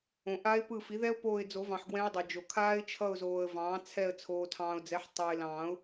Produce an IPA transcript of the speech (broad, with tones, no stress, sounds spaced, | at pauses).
õ˨ ʔ a˦˥ ɪ̯ p ɯ˦˨ f i˩˥ ð ɛ˦˥ ʊ̯ p oː˦˨ ɪ̯ d͡z o˨˩˦ v ɑ̃˨ ħ ɡ w ɛ̃˦˥ ə̯ dˤ ʌ˨ d͡ʒ o˨ kʰ aː˦˥ ɪ̯ t͡ʃʰ ʌ˦˨ ʊ̯ z oː˨ ə̯ v ɑ̃ː˩˥ t͡sʰ ɛ˦˨ ə̯ t͡sʰ oː˨ tʰ ɑ̃ː˨ ʊ̯ d͡z ɛ˩˥ ħ tˤ ʌː˨ ɪ̯ l ɑ̃ː˨˩˦ ʊ̯